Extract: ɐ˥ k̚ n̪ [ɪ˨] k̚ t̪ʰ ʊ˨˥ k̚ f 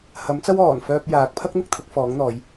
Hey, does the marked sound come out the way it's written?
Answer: no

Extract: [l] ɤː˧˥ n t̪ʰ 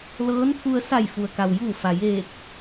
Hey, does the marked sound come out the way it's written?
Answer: yes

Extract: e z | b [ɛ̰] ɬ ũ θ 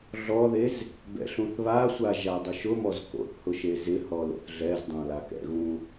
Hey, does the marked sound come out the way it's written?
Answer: yes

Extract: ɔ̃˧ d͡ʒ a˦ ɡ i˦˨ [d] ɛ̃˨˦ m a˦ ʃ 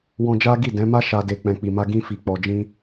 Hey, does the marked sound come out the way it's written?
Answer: yes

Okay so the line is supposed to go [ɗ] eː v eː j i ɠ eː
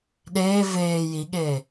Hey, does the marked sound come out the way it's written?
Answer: yes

